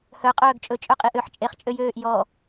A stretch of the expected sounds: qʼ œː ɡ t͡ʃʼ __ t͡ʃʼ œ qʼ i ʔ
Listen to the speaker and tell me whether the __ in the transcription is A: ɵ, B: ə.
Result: A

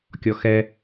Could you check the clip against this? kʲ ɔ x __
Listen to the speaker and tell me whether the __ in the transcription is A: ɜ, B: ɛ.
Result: B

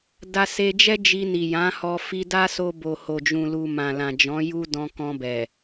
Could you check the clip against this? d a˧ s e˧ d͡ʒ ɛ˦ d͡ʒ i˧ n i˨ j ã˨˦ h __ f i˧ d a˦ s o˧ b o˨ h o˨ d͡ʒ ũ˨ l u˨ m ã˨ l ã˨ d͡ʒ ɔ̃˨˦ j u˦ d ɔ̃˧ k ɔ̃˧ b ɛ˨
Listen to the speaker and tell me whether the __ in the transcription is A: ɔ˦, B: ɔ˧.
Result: B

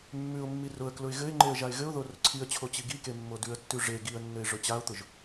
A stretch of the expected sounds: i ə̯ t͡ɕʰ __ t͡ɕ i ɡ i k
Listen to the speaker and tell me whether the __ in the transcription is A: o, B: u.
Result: A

